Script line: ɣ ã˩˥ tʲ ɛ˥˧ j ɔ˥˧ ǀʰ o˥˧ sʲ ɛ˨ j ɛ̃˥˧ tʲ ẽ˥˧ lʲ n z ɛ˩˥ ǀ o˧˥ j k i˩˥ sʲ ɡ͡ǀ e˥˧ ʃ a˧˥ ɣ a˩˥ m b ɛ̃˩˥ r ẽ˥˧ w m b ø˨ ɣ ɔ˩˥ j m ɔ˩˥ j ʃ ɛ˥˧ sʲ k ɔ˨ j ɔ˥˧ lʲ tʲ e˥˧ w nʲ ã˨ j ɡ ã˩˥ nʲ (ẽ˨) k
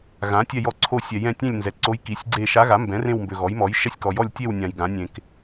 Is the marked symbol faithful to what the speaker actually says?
yes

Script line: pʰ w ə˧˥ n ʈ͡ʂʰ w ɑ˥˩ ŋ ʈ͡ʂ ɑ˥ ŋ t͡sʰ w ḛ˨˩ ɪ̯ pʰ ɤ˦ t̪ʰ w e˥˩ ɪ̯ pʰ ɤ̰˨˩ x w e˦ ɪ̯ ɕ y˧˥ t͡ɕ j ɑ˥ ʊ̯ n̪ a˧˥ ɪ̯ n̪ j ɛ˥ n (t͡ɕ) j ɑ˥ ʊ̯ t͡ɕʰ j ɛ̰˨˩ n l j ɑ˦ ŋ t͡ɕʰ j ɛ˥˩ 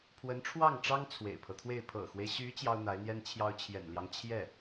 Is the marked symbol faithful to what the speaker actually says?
no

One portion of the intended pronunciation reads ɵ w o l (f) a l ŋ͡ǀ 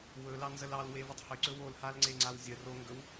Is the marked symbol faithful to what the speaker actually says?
no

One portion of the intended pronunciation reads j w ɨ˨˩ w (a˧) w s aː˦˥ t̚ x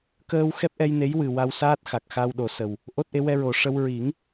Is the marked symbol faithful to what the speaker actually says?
yes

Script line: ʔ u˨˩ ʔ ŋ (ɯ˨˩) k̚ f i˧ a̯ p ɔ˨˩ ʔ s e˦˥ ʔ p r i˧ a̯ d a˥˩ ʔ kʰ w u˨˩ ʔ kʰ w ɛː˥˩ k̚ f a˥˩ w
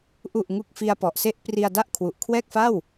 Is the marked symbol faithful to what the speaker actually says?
no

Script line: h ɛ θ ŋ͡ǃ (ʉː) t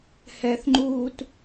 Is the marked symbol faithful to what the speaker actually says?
no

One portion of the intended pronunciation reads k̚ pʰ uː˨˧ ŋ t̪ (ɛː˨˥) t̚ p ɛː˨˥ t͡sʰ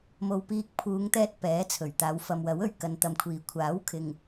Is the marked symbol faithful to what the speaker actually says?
no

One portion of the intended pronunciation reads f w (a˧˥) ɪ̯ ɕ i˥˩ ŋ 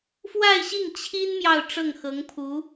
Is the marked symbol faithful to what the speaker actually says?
no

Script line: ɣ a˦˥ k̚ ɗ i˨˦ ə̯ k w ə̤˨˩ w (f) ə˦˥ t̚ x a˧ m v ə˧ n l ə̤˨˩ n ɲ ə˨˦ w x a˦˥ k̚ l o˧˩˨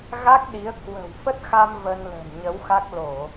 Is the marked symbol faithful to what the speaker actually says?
yes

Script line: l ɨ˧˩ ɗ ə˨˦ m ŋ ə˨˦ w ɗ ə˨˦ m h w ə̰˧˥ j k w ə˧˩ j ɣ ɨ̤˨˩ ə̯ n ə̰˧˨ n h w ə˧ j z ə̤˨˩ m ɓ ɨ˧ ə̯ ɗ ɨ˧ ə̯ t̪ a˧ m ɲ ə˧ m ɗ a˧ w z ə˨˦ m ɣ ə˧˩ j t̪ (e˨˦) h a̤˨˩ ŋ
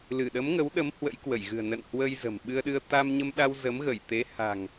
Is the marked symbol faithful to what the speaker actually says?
yes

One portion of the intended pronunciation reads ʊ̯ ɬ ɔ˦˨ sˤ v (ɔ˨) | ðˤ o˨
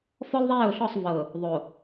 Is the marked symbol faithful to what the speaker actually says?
no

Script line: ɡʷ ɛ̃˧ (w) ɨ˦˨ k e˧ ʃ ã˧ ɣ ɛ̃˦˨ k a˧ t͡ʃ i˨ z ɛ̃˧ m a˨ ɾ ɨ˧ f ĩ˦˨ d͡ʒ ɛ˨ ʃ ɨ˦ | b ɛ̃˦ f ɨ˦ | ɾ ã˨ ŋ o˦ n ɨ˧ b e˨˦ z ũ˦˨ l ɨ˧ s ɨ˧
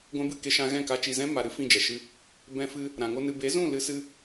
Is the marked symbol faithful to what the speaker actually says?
no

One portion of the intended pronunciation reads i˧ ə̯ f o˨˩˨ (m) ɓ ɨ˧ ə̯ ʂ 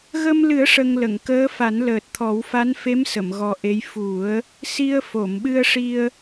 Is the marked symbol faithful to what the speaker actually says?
yes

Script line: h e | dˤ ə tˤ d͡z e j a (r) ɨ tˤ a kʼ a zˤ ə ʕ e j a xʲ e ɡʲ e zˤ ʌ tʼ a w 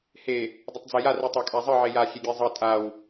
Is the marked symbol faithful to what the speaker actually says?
yes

